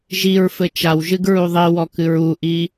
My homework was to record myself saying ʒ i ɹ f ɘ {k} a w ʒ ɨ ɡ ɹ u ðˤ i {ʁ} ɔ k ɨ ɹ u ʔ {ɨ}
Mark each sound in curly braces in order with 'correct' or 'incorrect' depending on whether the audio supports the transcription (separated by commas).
incorrect, incorrect, incorrect